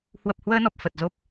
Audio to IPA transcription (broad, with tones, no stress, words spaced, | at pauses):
hwə˨˩p̚hwəː˧nɔ˨˩p̚ fə˨˩t̚zo˦˥p̚